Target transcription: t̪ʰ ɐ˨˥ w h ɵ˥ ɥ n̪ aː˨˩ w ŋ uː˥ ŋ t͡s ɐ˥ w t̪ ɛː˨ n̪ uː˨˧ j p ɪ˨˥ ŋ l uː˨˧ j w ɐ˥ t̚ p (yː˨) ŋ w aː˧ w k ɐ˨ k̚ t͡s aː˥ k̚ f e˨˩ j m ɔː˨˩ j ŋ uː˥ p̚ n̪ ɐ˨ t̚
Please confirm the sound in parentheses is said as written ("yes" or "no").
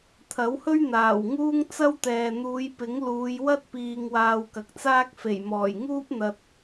no